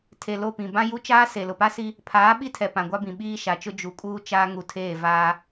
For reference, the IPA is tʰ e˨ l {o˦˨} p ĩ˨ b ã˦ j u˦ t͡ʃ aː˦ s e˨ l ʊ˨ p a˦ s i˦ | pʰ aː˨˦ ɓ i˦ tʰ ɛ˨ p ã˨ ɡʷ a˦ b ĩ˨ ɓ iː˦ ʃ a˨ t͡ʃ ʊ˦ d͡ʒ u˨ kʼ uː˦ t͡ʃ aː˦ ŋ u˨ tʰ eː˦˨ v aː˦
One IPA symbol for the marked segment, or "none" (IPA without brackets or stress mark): o˦˨